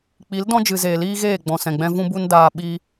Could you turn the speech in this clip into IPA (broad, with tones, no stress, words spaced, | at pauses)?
k͡pi˨˦ldɔ̃˦d͡ʒɨ˨ zeː˨liː˦ɣeː˦˨ ɡ͡bɔ̃˨sɛ̃˨ɡ͡bɛ̃˧ vũ˦bu˦ndaː˧ ɓi˧